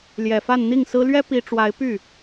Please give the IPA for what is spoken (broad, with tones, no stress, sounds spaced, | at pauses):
l j ɛ˨˩ f a˥˧ n n̪ i˥˩ ŋ s ɹ̩˥ l ɥ ɛ˥ p i˧˥ ʈ͡ʂ w a˧˥ ɪ̯ p y˥˩